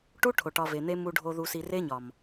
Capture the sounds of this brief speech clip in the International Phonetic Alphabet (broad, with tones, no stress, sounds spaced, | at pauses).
ʈ u˦ ʈʰ o˨ ʈ ɒ˧ v e˨ n̪ e˦ m u˧ ɖʱ o˧ ð u˨ s i˨ r e˦ ɲ ɒ˨ m